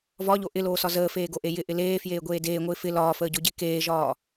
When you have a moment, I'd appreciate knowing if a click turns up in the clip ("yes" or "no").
no